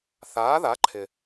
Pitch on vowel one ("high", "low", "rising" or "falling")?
rising